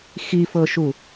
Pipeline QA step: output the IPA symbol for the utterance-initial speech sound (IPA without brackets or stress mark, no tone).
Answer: x